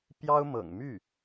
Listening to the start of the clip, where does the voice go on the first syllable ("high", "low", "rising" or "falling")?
high